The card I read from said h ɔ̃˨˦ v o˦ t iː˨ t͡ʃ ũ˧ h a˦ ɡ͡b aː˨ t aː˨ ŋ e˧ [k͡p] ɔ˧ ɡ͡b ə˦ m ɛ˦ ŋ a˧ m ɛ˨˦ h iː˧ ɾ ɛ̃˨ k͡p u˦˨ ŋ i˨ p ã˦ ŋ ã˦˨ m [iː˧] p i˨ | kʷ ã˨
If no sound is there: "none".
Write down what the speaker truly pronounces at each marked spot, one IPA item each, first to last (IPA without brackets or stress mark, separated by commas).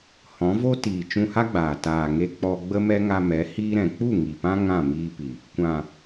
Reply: k͡p, iː˧